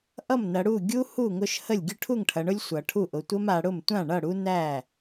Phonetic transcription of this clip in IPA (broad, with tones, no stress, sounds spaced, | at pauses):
ʔ ʌ˥˩ m n ɐ˩˧ ɽ u˥˩ ɡʲ u˦ h u˥˩ ŋ ʊ˦ ʃ h ə˥˩ lʲ ɡʲ ʊ˥˩ ʈʰ u˥˩ ŋ ʈʰ ɐ˩˧ ɳ ʊ˦ lʲ sʷ ʌ˩˧ ʈʰ u˥˩ ʔ ʊ˩˧ tʷ ə˦ m a˩˧ ɽ ʊ˥˩ m tʷ ã˥˩ ɳ ʌ˥˩ ɽ u˦ n æ˥˩